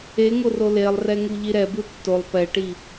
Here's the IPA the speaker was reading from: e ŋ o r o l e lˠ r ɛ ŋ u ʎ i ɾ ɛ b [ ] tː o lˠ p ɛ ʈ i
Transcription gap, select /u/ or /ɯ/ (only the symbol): ɯ